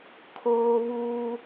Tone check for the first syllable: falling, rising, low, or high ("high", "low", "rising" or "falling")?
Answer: high